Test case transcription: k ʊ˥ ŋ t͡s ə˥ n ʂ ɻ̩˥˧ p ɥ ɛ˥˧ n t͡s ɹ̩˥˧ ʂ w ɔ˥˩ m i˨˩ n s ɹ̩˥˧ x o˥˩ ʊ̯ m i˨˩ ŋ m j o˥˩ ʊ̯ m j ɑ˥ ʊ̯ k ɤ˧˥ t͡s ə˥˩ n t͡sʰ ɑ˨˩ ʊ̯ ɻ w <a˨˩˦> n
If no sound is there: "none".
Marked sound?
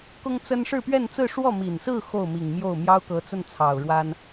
a˥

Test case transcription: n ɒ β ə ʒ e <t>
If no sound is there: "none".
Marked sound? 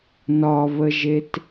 t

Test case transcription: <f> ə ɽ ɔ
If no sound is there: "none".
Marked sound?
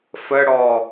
f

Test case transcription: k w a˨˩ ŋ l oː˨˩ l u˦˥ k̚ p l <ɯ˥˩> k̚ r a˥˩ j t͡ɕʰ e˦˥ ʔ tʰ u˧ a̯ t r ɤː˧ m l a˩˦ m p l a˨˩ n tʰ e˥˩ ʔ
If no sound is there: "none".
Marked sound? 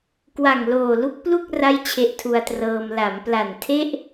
u˥˩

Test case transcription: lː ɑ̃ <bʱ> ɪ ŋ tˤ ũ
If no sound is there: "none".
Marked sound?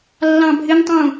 bʱ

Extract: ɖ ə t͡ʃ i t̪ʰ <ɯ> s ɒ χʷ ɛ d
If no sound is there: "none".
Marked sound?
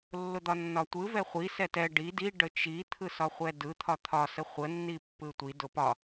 ɯ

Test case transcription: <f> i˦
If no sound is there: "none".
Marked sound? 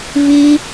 v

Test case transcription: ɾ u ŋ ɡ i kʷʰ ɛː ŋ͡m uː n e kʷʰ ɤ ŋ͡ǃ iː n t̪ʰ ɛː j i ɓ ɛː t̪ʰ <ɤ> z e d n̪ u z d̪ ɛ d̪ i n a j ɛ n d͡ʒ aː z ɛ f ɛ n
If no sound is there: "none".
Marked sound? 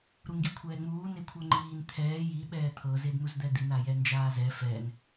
ɤ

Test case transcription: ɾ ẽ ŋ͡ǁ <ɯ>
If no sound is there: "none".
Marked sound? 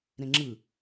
ɯ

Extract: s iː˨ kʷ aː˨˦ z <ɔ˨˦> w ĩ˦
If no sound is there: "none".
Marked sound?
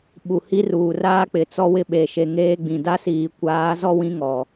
ɔ˦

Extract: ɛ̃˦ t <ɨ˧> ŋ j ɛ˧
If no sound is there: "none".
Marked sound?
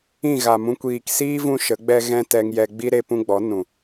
ɛ˧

